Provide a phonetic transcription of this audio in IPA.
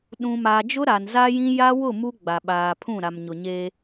ɗũ˨ma˨ d͡ʒʊ˦ɾa˨nza˦jĩ˦ ja˦wʊ˦˨ mu˦ɡ͡ba˨ɓaː˨pʰũ˦˨ ɾa˨mɲʊ˨ɲeː˦

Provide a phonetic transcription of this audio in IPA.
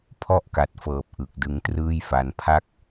pʰɔ˥˩ʔka˨˩t̚fɤː˨˩p̚ ʔɯ˨˩k̚dɯ˧ŋ trɯː˥˩jfa˧n pʰa˥˩k̚

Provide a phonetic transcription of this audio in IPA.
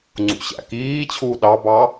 ŋ͡ǀṵɕæ̰kiːt͡ɕʰuː ɗɑbɑ

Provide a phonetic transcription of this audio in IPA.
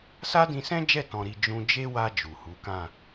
sa˦dĩ˧sɛ̃˦d͡ʒɛ˦˨ tɔ̃˧ɾi˧ d͡ʒũ˧d͡ʒe˦wa˧ d͡ʒu˨hu˨˦kã˦˨

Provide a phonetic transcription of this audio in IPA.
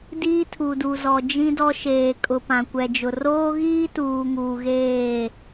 diː˦tʰu˨du˨ zɔ˨d͡ʒĩ˦ dɔ˦ʃeː˨ kʼʊ˨pã˨kʷɛ˨d͡ʒʊ˨ roː˦ɣiː˦tuː˨ ŋuː˨ɣeː˦˨

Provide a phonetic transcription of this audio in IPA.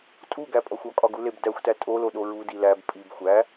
tʼuɡæpʼɒxʷ ɒkʼɒɡuleb dæxʷtæ tʼoloɗo ɹudi læb pʼib xʷæ

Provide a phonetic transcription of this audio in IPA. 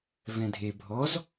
vɛ̃dʱe bʱɔz

